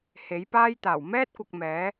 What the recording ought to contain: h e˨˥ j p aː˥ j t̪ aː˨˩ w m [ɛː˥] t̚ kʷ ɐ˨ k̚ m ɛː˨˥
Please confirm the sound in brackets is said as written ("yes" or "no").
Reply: yes